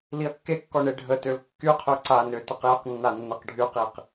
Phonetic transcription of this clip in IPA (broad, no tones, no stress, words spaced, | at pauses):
liɐ̯kːekːɔ ɳeɖʱətøl kːyqʰø ǀanø təqjəqnːa nːɛqɖʱyqiq